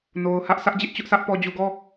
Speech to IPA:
n o˨ ʊ̯ h ä˦ ʔ s ä˦ ʔ d͡ʑ ɪ˦ ʔ t͡ɕ ʊ˦ ʔ s ä˦ ʔ p ɔ˨ d͡ʑ u˨ ɡ ɔ˦˨

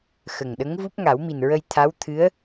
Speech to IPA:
x ə˨˩ ŋ ɗ ə˧˥ ŋ v u˦˥ p̚ ŋ a˨˩˦ w m i˨˩ n ɹ ə˧ j t̪ʰ a˧˥ w t̪ʰ ɨ˧˥ ə̯

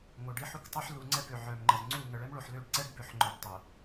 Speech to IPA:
ŋ o˨ ɖ i˦ ħ u˦ k tˤ o˦ ħ l u˨ ŋ͡ǀ ɛ˦ b ø˨ ʕ œ˨ m ŋ͡ǃ ə˨ z ŋ͡ǀ u˦˨ ŋ ə˨ ɭ ɛ˦ m ɭ o˨ ħ l ø˦˨ ɖ ǀ ɛ˦ ɖ b ø˨ ħ ŋ͡ǃ œ˨ ɖ tˤ o˨

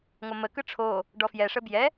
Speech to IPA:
ŋʷ ʌ m ə k ɯ ʈ͡ʂʰ o | ɖ ɔ f j ɛ ʂ ə b j ɛ

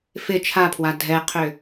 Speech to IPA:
f ɪ t͡ʃʰ a pʰ w a dʱ ɛ qʰ ʏ

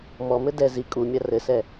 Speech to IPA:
m ɔ m ɘ d ɛ z i kʼ u mʲ a r ɘ s ɛ

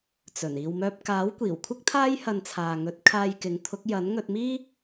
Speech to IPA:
t͡s ɵ˨˩ n iː˨ w m œː˧ p̚ k aː˨˥ w kʷ iː˨˩ w kʷʰ ɪ˥ k̚ t̪ʰ aː˥ j h ɐ˧ n t͡sʰ aː˨ ŋ ɵ˨˥ t̚ kʰ aː˧ j k ɪ˨˥ ŋ t̪ʰ ʊ˨˥ k̚ j ɐ˨˥ n ŋ ɵ˧ t̚ m iː˥

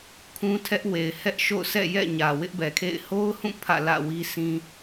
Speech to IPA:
kʰ ũ˦ tʰ ɛ˦ ʔ w e˨ ɪ̯ h ɛ˦ ʔ ʃ o̰˦˨ ʊ̯ sʰ ɛ̰˦˨ j ɛ̰˦˨ ɲ ä˨ w ɪ˦ ʔ b ɛ˨ kʰ ḛ˦˨ ɪ̯ h o˦ ʊ̯ h ũ˦˨ pʰ ä̰˦˨ l ä̰˦˨ w i˦ sʰ ĩ˦

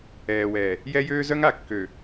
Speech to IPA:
ɛː˨ w ɛː˨ | j ɛ˦ j øː˦ z œ˦ ŋ a˨ kː ø˨

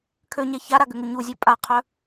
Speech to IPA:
kʰ ø ɲ ɛ ç a ɾ a ɡ ʏ ŋ u ɲ u zʲ ø pʼ a qʰ œ

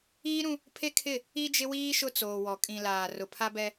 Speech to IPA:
iː˦ ɾ ũ˦ | pʰ e˦ kʰ ɪ˦˨ | i˦ d͡ʒ ɪ˦ w iː˦ ʃ ʊ˦ t͡s oː˨ w ɔ˨ kʼ ĩ˨ l aː˨ r ʊ˨ pʰ a˦ b ɛ˦

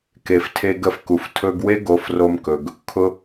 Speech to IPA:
k e˨ f tʰ e˧ ɡ ə˧ f k u˨ f tʰ ɵ˧ ɡ w e˦ ɡ o˧ f r o˧ m k ɵ˨ ɡ | kʰ ʊ˧

